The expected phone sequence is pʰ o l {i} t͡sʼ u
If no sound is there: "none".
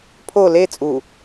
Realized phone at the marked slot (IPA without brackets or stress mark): e